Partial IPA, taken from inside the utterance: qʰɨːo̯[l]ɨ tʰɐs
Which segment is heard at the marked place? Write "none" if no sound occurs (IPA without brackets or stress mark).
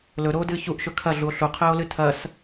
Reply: l